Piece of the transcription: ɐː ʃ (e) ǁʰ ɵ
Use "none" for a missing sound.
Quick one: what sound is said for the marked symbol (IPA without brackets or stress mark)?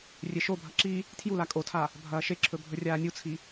e